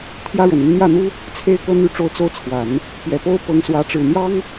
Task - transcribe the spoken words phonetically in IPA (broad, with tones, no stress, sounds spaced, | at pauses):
t̪ʰ j ä˥ ɻ ə˨˩ n i˧˥ ŋ n̪ j ä˥˩ n̪ u˥ | t͡sʰ e˥ ɪ̯ k ɤ˥˧ n̪ y˥˧ ʈ͡ʂ o˥˧ ʊ̯ t͡s o˥˩ ʊ̯ t͡sʰ w a˨˩˦ n | p j ɛ˨˩ p o˥ ʊ̯ p ɤ˧˥ ŋ s w ä˧˥ ʈ͡ʂ ɻ̩˨˩ n̪ j ɑ˥ ŋ